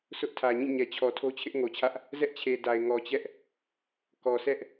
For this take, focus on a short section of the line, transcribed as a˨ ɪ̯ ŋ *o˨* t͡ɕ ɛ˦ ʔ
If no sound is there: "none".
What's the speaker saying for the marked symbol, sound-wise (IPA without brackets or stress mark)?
ɔ˨